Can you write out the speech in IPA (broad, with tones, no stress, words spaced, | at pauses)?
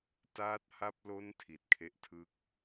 taː˦˥t̚ha˦˥p̚lo˦˥n tʰi˨˩t̚kʰe˦˥ʔtʰɯ˦˥k̚